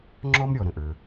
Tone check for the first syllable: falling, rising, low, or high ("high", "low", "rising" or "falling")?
high